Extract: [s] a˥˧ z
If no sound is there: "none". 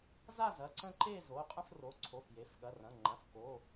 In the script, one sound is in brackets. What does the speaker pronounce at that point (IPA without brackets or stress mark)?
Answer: z